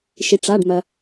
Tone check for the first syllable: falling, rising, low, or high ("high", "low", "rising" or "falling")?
low